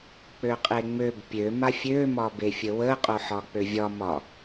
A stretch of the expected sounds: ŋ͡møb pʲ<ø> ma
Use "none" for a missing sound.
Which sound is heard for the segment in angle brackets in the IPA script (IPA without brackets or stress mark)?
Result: ø